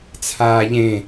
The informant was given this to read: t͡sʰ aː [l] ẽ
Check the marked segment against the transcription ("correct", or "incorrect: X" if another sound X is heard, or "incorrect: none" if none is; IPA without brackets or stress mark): incorrect: ʎ